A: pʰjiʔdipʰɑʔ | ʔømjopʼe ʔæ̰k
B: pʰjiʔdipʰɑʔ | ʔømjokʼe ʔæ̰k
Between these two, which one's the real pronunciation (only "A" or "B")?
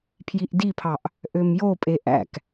A